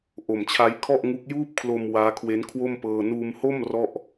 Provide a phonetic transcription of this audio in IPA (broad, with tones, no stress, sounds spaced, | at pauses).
ʔ o˨˩ m t͡ɕʰ a˦˥ j kʰ ɔ˥˩ ʔ ŋ u˦˥ k̚ j uː˥˩ p̚ kʰ l o˧ m w aː˦˥ kʰ w e˦˥ n kʰ w o˥˩ m p ɤː˧ n uː˧ m h o˥˩ m r ɔ˥˩ ʔ